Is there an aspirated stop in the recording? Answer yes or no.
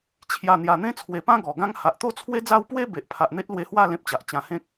yes